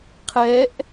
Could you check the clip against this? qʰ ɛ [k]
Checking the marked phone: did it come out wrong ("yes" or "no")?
yes